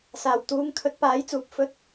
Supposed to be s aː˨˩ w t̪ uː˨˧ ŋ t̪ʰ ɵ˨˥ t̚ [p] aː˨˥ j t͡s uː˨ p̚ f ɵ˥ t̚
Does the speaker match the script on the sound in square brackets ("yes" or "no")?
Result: yes